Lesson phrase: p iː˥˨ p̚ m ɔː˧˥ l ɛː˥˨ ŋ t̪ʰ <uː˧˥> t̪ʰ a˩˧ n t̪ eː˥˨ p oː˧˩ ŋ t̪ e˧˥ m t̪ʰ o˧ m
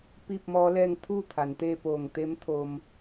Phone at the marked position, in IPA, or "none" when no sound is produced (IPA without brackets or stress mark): uː˥˨